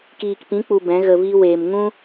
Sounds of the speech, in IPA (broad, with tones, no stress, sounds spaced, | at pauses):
k iː˨ k p ĩ˨˦ k͡p u˨ b ɛ̃˨˦ ɣ ə˧ v i˦ w eː˨ m ŋ ũ˦